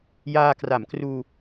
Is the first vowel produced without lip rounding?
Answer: yes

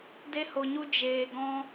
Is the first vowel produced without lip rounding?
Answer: yes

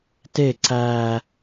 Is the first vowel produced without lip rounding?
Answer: yes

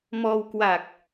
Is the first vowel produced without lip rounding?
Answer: no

